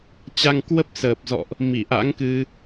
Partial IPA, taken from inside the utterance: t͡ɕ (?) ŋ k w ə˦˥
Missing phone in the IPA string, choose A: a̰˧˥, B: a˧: B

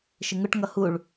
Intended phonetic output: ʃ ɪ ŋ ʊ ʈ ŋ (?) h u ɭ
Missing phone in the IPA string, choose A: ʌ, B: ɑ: A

